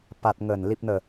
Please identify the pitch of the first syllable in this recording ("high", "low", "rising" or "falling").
low